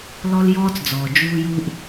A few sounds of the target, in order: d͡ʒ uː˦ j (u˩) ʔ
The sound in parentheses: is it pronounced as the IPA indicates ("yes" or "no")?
no